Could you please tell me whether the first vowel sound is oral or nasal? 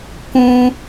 nasal